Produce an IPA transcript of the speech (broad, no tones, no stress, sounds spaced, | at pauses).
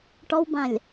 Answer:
ʈ ɔ w b ã lʲ